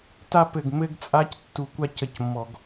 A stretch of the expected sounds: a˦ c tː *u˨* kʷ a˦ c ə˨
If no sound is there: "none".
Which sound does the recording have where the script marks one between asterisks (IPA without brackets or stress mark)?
u˨